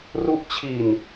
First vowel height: high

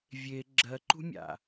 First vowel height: mid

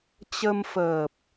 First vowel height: mid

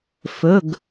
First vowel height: mid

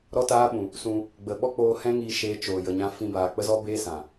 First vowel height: mid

